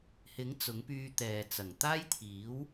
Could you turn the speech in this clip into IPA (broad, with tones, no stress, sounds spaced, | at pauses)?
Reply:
h ɪ˨˥ ŋ t͡s ʊ˨˥ ŋ p yː˧ t̪ ɛː˨ t͡s ɐ˨˩ ŋ t̪ aː˥ j t̪ʰ iː˨˥ w